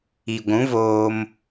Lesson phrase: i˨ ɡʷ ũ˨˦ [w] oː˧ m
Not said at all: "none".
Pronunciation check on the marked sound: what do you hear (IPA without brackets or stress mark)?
v